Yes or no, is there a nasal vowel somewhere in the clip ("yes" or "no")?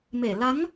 no